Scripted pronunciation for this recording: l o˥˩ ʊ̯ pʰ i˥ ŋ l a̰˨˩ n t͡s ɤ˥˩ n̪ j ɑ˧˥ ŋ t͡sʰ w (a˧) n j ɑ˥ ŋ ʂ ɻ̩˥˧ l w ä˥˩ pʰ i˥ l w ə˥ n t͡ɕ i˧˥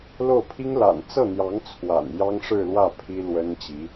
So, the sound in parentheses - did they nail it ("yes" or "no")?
no